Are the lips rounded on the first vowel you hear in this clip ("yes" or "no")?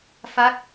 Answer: no